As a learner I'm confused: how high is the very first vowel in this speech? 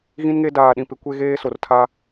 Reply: high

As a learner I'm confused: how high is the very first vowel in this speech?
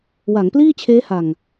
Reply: low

